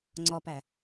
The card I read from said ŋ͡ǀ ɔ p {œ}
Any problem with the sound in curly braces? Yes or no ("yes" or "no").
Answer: yes